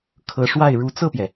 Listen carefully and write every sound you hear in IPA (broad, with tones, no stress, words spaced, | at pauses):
kʰɤ˧˥ʂwa˥˩ɪ̯ ɻu˧˥t͡sɤ˥˩pjɛ˩